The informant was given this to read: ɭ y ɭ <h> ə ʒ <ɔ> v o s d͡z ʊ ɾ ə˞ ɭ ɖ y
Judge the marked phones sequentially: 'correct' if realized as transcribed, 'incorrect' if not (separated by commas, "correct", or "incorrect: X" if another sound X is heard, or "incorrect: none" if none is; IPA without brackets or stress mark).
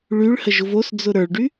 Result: correct, incorrect: ʊ